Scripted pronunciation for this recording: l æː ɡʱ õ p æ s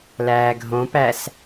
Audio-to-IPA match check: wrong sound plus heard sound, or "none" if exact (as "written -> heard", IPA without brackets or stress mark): none